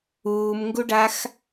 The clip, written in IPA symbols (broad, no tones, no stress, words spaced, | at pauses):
uːmŋɡuɖax